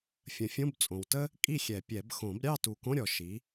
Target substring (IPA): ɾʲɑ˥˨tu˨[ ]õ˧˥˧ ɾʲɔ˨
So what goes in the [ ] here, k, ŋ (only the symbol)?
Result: k